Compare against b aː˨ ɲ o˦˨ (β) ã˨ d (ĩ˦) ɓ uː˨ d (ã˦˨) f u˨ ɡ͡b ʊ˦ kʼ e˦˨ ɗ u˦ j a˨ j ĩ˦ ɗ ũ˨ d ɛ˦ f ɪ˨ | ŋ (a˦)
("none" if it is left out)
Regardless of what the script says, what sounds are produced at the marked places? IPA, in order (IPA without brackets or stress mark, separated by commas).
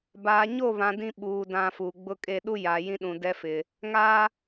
β, ĩ˦, ã˨, aː˦